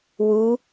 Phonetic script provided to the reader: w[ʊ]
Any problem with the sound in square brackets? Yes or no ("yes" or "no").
yes